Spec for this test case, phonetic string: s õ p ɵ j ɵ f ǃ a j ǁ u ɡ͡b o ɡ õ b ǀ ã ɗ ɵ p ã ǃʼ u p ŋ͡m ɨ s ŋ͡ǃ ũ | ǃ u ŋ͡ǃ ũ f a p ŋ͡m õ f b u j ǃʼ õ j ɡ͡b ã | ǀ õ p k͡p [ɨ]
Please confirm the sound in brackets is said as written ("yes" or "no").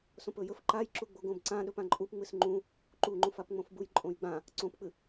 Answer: yes